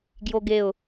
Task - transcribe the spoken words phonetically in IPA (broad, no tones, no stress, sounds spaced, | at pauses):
ɡ j o ɡ e ʊ̯